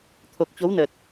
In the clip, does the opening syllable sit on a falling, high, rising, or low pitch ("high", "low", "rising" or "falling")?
low